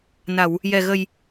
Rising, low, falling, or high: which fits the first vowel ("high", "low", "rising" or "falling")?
low